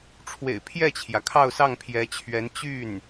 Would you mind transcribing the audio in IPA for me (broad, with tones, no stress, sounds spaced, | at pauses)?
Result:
ʈ͡ʂʰ w ḛ˨˩ ɪ̯ pʰ j ɛ˥˩ t͡ɕʰ j ä˩ kʰ ɑ˥˧ ʊ̯ s ɑ˥˩ ŋ pʰ j ɛ˧˥ t͡ɕʰ ɥ ɛ˧˥ n t͡ɕ y˥˩ n